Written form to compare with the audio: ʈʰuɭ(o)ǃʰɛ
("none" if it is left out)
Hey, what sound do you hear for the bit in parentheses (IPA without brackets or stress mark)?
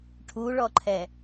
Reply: ɔ